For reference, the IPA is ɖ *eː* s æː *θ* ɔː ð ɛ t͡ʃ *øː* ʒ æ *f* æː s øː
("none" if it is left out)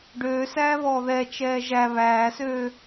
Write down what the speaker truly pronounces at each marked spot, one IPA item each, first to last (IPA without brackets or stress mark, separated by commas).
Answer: øː, β, ɛː, β